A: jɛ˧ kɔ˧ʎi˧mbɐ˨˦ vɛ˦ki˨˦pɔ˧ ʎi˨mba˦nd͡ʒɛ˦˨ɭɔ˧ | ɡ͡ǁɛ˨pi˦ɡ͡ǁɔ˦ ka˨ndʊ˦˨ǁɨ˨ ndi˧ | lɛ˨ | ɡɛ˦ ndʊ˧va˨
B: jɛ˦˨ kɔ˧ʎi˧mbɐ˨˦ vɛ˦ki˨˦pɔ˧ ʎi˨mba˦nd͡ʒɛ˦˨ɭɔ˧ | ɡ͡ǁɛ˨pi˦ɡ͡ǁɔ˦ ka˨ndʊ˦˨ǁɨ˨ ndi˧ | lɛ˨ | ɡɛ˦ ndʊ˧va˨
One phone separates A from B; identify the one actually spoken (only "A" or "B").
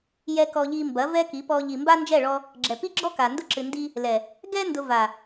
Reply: A